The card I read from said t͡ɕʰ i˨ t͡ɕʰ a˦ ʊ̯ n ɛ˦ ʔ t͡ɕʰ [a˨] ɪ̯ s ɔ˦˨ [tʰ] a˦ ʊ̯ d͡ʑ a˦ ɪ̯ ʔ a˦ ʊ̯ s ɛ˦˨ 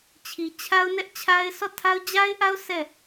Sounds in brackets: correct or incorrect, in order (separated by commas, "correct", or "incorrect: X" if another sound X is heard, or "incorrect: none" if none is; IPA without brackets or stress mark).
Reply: incorrect: a˦, correct